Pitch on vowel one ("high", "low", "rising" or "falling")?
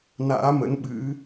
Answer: rising